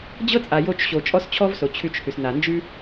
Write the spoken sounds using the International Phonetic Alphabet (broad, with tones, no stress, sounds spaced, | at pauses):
d͡ʑ ɤ˦ t͡sʼ a˨ j o˧ t͡ʃ ɕ o˨ t͡ʃʼ ɔ˦ s t͡ɕʰ ɔ˦ v s o˨ t͡ɕʰ ʉ˧ t͡ʃ h ʉ˨ s n a˨ n d͡ʒ ʉ˦